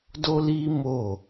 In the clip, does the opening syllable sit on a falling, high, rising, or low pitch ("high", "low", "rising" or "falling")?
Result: high